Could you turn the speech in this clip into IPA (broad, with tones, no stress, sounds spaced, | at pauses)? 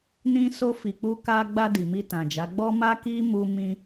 n ĩ˧ s o˧ f i˨ k͡p u˧ k a˧ ɡ͡b a˧ d i˨ m i˧ t ã˨ d͡ʒ a˨˦ ɡ͡b ɔ˦ m a˦ k i˦ m u˧ m ĩ˧